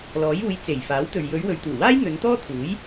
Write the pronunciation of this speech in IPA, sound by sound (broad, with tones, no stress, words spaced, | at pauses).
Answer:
lɔː˨˥juː˨˧j t͡se˨˩jfaː˨˥wt̪ɵ˨ɥ jɵ˨˧ɥwɵ˨ɥt̪uː˨˩waː˥j n̪ɵ˨˧nt̪ɔː˥t̪ʰuː˨˥j